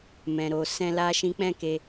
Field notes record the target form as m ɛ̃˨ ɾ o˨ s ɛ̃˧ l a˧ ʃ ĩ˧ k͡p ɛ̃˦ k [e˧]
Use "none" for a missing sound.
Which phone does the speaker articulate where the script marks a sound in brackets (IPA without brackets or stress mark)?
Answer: e˧